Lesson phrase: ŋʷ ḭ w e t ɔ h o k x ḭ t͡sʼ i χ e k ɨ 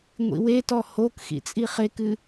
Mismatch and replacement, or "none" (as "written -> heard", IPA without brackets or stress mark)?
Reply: none